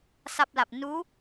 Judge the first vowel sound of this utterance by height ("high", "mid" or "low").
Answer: low